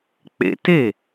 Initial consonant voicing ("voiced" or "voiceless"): voiceless